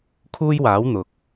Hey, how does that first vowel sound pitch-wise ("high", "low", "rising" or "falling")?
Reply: high